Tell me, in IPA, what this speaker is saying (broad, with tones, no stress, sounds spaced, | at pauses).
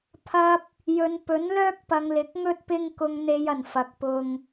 pʰ ɐ˧ p̚ | j ɵ˨ n p ɵ˨˥ n l œː˥ k̚ p ɐ˨ ŋ l ɪ˨˥ k̚ ŋ ɵ˥ t̚ p ɪ˧ ŋ k ʊ˨ ŋ n̪ e˨ j ɐ˨˩ n f ɐ˨ k̚ p ʊ˧ ŋ